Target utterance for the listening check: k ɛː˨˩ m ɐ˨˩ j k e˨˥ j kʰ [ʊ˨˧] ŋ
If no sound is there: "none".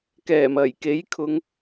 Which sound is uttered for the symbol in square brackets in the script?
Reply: ʊ˨˧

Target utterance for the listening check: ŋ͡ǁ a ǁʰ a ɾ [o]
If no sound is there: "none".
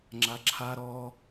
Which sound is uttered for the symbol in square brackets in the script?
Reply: ɔ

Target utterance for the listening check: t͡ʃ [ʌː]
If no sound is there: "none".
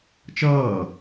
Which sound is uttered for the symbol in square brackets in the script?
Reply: ʌː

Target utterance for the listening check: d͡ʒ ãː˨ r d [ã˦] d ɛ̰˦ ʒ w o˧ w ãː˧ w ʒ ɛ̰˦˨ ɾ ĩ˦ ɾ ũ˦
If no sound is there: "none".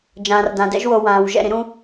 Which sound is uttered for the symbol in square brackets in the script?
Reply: ã˨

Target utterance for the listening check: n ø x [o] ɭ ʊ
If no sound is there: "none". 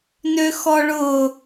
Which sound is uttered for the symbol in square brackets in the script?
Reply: ɔ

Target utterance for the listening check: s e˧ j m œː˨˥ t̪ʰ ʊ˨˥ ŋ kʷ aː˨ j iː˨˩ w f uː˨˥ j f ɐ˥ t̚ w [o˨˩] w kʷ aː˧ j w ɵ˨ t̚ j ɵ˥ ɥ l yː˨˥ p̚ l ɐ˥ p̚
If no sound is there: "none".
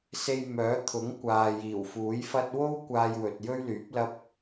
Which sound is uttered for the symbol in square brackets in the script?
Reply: o˥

